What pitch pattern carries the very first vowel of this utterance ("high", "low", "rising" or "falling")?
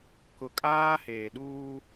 low